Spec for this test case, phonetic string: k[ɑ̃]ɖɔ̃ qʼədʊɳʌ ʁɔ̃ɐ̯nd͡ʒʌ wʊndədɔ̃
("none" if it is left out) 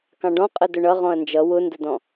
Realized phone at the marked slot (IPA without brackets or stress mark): ɑ̃